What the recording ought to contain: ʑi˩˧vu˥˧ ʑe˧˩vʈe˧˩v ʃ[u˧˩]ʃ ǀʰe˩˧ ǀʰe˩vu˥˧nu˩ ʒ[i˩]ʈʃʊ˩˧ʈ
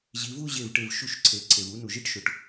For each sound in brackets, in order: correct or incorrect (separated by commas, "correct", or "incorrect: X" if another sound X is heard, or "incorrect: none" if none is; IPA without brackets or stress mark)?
correct, incorrect: i˥˧